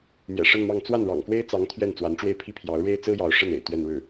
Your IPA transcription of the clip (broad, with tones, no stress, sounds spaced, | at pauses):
m j ɛ̰˨˩ ʂ ə˥˧ n m ɑ˥˧ ŋ t͡s w a˥˩ n ɻ ɑ̰˨˩ ŋ k w e˥ ɪ̯ t͡s ɑ˧˥ ŋ t̪ʰ ɥ ɛ˥˩ n t͡s w a˧˥ n ʈ͡ʂ w e˥˩ ɪ̯ pʰ i˥ pʰ j ɑ˧˥ ʊ̯ ɻ e˥ ɪ̯ t͡s ɹ̩˥ j ɑ˧˥ ʊ̯ ʂ ə˥˩ n ḛ˨˩ ɪ̯ t̪ ɥ ɛ˥˧ n ɻ ɻ̩˥˩